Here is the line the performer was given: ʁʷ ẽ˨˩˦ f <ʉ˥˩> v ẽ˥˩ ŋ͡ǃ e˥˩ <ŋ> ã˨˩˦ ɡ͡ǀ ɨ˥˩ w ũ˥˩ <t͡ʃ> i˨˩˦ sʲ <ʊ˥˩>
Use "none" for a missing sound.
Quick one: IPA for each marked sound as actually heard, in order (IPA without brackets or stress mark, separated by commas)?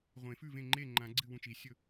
ʉ˥˩, ŋ͡ǃ, t͡ʃ, ɵ˥˩